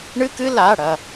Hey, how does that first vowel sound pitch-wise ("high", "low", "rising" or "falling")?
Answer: high